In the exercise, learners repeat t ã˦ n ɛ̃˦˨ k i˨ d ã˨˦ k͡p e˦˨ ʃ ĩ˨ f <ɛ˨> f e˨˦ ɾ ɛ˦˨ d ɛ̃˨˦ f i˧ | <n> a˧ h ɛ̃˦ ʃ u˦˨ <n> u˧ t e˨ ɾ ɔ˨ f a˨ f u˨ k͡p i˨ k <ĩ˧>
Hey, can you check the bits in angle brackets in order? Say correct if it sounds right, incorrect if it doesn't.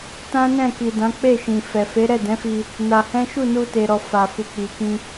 correct, correct, correct, correct

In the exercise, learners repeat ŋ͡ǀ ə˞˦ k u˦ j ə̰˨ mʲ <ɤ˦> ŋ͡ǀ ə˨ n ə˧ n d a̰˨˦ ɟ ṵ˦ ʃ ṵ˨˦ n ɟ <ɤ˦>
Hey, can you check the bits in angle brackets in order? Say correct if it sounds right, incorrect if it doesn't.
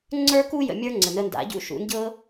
incorrect, correct

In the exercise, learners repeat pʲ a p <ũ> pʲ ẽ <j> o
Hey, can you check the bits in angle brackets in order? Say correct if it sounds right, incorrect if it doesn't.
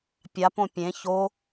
incorrect, incorrect

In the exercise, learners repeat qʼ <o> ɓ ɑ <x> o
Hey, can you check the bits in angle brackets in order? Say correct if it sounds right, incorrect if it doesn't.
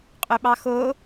incorrect, correct

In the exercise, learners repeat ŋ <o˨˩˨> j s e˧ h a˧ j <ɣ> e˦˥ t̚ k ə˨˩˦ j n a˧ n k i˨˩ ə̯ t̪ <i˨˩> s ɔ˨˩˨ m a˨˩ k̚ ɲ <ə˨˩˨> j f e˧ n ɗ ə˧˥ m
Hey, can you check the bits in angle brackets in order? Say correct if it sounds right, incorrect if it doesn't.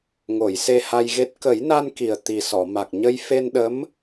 correct, correct, correct, incorrect

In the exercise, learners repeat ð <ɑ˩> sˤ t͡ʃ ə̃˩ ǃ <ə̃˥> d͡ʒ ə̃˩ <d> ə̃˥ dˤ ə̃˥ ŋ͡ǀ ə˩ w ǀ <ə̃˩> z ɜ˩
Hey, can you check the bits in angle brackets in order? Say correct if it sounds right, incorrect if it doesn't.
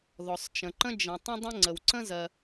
incorrect, correct, incorrect, incorrect

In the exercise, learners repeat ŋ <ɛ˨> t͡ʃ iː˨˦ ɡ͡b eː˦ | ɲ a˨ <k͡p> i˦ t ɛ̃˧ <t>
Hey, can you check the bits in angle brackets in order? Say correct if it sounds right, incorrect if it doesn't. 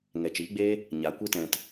correct, incorrect, correct

